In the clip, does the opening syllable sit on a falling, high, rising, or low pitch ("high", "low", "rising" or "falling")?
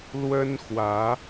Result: high